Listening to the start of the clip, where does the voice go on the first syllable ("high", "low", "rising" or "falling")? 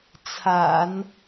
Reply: low